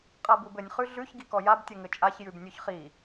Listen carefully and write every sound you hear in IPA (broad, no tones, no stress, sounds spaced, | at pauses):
qʼ a b u b ɘ nʲ χ ʉ ɮ ʉ ç ɡ i k ɔ j a b tʲ ɘ ŋ ɘ t͡ʃʼ a ç j ʉ b nʲ ʉ ç χ i